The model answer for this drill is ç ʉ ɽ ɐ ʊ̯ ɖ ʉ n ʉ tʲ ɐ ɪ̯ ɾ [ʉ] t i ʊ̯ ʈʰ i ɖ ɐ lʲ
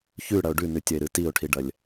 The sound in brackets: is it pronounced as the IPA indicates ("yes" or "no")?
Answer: no